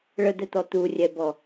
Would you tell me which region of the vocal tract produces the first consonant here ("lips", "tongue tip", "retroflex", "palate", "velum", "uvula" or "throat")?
retroflex